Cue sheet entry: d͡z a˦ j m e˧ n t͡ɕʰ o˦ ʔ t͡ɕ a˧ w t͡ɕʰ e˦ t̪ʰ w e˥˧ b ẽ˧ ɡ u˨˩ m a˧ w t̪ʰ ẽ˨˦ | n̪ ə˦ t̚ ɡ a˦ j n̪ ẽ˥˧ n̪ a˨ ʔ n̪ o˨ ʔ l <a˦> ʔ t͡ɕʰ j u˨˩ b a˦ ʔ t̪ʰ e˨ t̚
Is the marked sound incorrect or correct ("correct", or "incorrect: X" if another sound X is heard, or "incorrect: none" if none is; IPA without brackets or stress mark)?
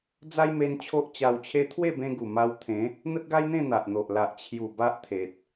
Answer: incorrect: a˨